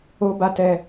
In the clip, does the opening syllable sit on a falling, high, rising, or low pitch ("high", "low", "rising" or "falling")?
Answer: high